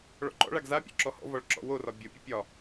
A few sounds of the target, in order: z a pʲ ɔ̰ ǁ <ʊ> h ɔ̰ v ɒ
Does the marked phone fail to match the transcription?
yes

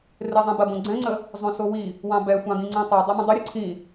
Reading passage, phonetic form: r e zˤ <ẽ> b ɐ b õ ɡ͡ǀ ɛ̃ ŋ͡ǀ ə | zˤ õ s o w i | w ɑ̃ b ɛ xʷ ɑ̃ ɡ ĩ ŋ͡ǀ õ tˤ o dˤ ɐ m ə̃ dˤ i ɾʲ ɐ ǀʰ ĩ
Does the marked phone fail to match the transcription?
no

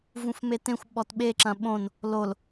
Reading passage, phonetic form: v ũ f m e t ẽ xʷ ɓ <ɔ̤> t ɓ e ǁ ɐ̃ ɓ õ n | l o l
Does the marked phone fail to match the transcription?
yes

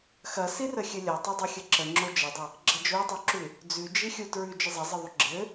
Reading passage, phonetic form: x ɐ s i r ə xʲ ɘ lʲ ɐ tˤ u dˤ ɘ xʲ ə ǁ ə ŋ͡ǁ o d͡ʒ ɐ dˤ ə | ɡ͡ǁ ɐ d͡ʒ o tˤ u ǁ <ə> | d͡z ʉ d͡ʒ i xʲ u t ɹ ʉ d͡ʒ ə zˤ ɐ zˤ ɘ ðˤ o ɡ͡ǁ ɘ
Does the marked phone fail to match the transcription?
yes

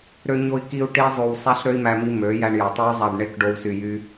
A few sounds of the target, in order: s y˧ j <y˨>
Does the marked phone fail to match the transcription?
yes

